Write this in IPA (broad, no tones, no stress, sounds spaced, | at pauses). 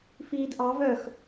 f iː d ʔ ɑ v œ x